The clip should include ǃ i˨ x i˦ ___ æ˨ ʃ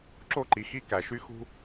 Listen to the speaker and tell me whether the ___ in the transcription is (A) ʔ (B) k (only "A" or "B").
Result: B